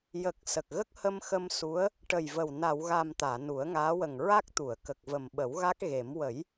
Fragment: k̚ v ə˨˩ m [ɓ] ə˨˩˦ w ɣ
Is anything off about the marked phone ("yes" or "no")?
no